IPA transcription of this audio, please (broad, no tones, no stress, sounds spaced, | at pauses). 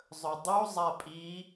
zˤ ɵ dˤ u zˤ a pʼ i